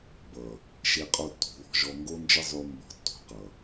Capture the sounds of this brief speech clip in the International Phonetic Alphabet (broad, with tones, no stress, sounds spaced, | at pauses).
b ʌ˨ | ʃ e˧ qʼ o˧ tː ṳ˨ β ɔ̤˧ ʒ ɔ˧ ŋ ɡ o˦ n d͡ʒ ə˦ zˤ ʉ˧ m b ɔ̤˧ tː ṳ˧ q ʌ˨